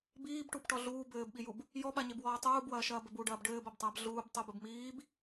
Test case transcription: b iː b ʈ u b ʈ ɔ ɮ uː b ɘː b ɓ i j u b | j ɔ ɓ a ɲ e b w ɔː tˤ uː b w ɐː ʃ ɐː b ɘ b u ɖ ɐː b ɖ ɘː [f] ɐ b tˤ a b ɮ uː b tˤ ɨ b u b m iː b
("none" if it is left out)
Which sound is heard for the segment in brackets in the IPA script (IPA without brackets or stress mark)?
b